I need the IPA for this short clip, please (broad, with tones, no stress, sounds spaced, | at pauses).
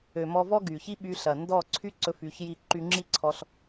ø˨ m ɔ˧ v ɔ˦ ɡ y˨ ç i˦ ɓ y˧ ɬ ɐ˨ n d ɔ˦˨ ǀʰ y˦ ǀ ɵ˧ f y˨˦ ç j i˦˨ ǃ y˧ ŋ͡ǁ i˦ ǀʰ ɔ˧ ɬ